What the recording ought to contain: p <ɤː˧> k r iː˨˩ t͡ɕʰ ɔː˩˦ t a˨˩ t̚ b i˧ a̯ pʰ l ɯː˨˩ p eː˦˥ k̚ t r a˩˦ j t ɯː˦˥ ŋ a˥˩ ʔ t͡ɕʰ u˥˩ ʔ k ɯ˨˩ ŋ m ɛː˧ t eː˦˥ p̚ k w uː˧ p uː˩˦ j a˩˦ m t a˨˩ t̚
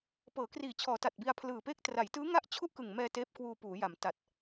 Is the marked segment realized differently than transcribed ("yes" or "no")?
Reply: yes